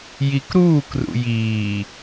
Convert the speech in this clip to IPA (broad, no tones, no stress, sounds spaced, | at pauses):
j i k ɾ uː k r ṵ j iː